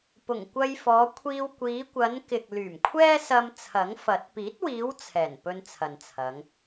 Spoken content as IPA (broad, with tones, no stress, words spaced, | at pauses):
pʊ˨˩ŋkʷɐ˧jfɔː˨˧kʷʰiː˧w kʷiː˨˧kʷɐ˨˧nkɪ˨k̚ lyː˨˩mkʷʰɛː˥sɐ˧m t͡sʰɐ˨˥ŋfɐ˨˥t̚ piː˨˥t̚wiː˨˧w t͡sʰɛː˨˩n pɵ˧nt͡sʰɐ˨nt͡sʰɐ˨˧ŋ